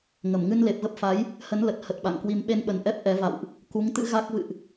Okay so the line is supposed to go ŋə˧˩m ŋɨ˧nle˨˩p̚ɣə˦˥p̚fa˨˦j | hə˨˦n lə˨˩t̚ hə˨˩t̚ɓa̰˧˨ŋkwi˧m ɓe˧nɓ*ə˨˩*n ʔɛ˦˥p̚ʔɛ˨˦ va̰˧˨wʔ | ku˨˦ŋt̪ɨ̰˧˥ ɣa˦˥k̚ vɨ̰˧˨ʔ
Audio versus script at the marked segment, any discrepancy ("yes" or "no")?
no